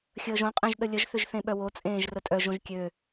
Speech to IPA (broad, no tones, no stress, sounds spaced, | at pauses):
xʲ əː ʒ õ qʼ ẽ ʒ ɗ ə lʲ ə ʒ θ ʏ ʒ θ ẽ ɓ œ w o t͡sʼ ẽː ʒ r ə tʼ œ ʒ õ ʒ kʲ ø